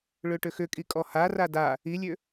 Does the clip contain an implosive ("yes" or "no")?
no